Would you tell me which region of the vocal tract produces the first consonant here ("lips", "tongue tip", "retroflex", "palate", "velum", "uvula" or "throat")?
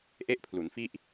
throat